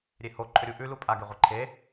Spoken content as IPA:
ɾʲ e h o ǃʰ ɵ ɾʲ u ʔ ʉ l u pʼ a ɡ e ʁʷ e ǃʰ e

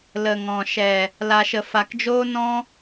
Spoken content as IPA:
l ə˨ ŋ ɔ̃˨ ʃ ɛ˨ | l a˨ ʃ ə˨ f a˨ k d͡ʒ oː˦ n ɔ̃˦

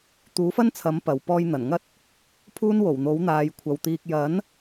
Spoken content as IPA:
t̪ uː˨˥ f ɐ˥ n t͡sʰ ɐ˨˥ m p ɐ˨ w p ɔː˧ j n̪ ɐ˨˩ n ŋ ɐ˥ t̚ | pʰ uː˥ n w o˨˩ w n̪ o˨˥ w n̪ aː˨˧ j kʷʰ ɐ˨ w t̪ iː˧ k̚ j ɐ˨˥ n

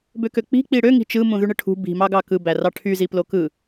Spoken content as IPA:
b ø k ø k͡p i̤ k͡p i ɽ ø ŋ i̤ t͡ʃ ɯ m ũ ð y ɳ ɯ ʈʰ ṳ b i̤ m ɑ ɡ ɑ k ɯ b æ r ɑ ʈʰ y z i p l o k ɯ

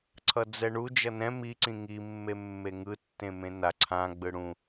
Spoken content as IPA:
ǀʰ ʌ d͡z ɛ ɳ u d͡ʒ ʌ n ɛ̃ m i ǀ ĩ ŋ i mː e mː e ŋ ɯ tː ẽ m ẽ n a ǀʰ ã ɡ͡b ɯ ɽ ũ

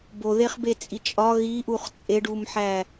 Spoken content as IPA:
b o ð e χ b e t͡sʼ i t͡ʃʼ ɒ ɣ i ʔ u χ t͡sʼ e ɖ u m ħ æ

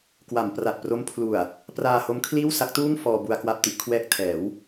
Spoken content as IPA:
k w a˩˦ m p r a˨˩ t̚ p r o˦˥ m pʰ l u˨˩ a̯ | p r aː˧ h o˦˥ m kʰ l iː˥˩ w s a˦˥ k̚ t uː˥˩ ŋ f ɔː˧ b u˧ a̯ k w a˥˩ p̚ t i˥˩ ʔ kʰ w ɛː˥˩ k̚ tʰ ɛː˩˦ w

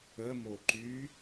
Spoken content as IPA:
ə m o ǃ y

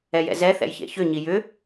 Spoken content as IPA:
ɛ j ɛ̰ z ɛ θ ɛ̰ j ç ḛ ç ʏ ɲ i j ʏ

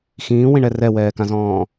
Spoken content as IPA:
x ĩː w ĩ ɳ ɛ r ɛ w ɛː k ã z ɔ̃ː

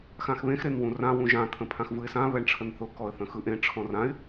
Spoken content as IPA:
x ã x β ẽ x ɾ e n w ũ r ã w ũ ʒ ã t̪ʰ ə̃ pʰ ã x v ɯ ɪ̯ s ã β ɛ ɳ ʈ͡ʂʰ ə n θ ʊ k ɔ ə̯ θ ə̃ x ɯ ʔ ẽ ʈ͡ʂʰ ɔ̃ r ã ɪ̯

